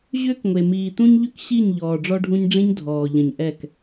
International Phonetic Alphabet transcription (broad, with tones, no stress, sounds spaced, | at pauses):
ʑ ʏː˦ k ŋʷ e˨ m iː˨ t̪ ũ˦ ɲ ʎ ʏ˦ k ɕ i˦˨ ɲ ʎ ɔː˨ ɖ͡ʐ ɔ˦ ɖʱ ũ˦ ɲ ɖ͡ʐ ĩ˦ ɲ dʱ ɔː˨ ʎ ə̃˨ ɲ ʔ ɛ˦˨ k